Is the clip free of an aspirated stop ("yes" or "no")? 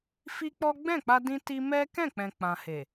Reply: yes